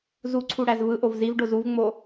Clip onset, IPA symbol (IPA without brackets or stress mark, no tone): z